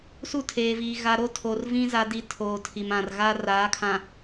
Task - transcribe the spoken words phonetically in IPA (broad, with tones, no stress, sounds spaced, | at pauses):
s u˦˨ tʰ eː˨ v iː˨ ɣ a˨ ɾ o˦ tʰ o˨ r v ĩ˦ z a˦ d i˦ tʰ oː˨ tʰ i˨ m ã˨ r ɣ a˦ r aː˨˦ kʰ ã˨